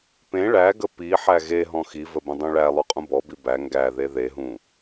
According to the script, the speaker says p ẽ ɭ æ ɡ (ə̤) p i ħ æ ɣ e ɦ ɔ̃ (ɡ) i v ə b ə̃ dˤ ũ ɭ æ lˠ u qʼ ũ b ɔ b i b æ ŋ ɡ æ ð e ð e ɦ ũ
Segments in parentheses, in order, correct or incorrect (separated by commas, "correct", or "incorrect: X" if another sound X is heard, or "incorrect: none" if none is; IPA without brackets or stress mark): incorrect: ə, incorrect: x